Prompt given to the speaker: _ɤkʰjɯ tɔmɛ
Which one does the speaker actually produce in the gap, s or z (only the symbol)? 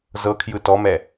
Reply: z